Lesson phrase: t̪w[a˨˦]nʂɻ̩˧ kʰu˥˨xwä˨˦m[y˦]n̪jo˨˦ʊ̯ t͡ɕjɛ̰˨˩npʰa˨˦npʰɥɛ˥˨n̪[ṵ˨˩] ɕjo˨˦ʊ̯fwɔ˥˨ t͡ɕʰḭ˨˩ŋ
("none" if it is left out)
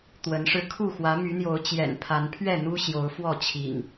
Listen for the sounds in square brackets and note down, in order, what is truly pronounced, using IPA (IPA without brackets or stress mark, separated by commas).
ə˨˦, y˨˦, u˦